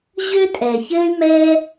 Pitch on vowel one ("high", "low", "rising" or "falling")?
high